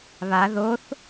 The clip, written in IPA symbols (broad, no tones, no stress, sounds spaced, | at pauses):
β a ð o θ